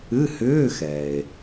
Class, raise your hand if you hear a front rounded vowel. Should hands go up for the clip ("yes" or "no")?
yes